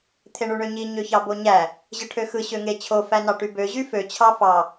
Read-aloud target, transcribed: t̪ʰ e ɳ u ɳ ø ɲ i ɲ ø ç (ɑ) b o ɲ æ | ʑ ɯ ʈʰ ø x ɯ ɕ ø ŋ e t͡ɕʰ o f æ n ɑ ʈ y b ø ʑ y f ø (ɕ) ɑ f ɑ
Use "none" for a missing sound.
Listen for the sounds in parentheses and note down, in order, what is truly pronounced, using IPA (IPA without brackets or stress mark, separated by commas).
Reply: ɑ, t͡ɕʰ